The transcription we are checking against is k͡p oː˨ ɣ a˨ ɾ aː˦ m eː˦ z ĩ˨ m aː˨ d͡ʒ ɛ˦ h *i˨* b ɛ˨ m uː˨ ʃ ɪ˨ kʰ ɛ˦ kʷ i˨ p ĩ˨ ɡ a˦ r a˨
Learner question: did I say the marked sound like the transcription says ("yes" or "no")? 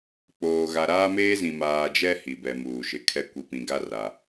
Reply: yes